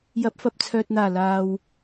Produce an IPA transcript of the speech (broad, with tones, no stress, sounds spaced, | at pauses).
j ɐ˨˥ p̚ f ɐ˨ p̚ t͡sʰ œː˨ t̚ n̪ aː˨˩ l aː˨ w